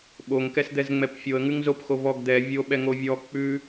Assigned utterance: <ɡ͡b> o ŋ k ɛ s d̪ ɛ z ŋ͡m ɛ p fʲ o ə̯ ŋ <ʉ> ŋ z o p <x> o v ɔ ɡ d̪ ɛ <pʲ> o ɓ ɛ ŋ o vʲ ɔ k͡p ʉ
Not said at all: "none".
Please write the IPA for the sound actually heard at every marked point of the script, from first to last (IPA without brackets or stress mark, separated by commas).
ɓ, ʉ, x, vʲ